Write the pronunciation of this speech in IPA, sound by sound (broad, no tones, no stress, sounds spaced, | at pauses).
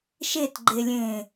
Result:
ʃ e t ɡ͡ǃ e lʲ ẽː